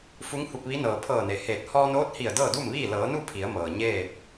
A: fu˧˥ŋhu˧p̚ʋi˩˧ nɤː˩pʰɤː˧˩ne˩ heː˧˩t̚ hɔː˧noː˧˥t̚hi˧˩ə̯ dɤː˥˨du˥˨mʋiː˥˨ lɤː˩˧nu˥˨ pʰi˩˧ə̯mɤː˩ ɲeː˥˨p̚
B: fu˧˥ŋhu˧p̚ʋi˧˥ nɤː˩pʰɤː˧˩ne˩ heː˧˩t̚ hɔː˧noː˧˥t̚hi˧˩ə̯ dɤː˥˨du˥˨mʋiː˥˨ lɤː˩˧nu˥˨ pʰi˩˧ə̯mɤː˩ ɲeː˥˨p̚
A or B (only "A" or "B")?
B